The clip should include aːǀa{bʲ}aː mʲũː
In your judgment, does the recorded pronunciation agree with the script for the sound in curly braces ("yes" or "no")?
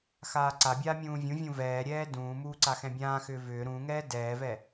yes